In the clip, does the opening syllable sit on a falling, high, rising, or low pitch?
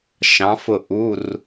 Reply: rising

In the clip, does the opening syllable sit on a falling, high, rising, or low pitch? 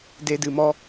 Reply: low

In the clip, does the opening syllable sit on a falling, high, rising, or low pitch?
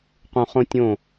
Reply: low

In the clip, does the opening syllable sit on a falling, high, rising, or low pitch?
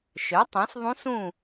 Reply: rising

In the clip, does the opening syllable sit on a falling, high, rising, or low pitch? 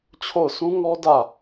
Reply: falling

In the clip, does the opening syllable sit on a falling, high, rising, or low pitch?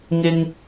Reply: low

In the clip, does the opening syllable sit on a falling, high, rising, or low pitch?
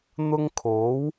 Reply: high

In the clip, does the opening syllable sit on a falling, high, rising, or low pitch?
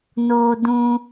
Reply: high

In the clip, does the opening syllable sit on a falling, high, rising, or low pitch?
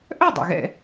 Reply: falling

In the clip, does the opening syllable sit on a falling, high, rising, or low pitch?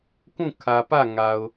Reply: falling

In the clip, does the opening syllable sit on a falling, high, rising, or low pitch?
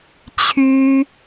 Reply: high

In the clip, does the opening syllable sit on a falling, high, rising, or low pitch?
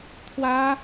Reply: high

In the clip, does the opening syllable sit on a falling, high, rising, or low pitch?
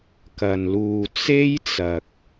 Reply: low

